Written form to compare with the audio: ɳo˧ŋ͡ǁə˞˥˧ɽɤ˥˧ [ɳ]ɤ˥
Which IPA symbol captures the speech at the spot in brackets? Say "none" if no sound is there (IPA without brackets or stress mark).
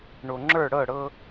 ɽ